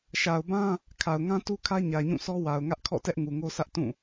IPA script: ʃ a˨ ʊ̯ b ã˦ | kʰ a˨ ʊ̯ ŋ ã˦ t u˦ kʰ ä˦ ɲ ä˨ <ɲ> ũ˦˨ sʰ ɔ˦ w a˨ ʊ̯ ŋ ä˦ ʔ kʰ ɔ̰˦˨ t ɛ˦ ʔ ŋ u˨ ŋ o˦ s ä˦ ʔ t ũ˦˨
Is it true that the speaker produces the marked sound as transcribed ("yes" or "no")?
yes